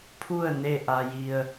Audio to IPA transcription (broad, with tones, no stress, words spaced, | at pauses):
pʰu˥˨ə̯ ne˥˨ʔa˧ji˧ə̯